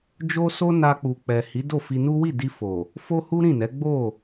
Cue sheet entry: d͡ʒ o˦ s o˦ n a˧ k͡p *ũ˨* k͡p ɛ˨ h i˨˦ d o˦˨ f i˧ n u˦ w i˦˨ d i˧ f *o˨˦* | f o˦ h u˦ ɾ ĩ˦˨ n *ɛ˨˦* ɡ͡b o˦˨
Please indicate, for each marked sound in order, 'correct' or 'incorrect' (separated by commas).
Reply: incorrect, incorrect, correct